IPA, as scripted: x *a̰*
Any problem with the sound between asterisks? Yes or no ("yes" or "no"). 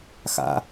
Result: no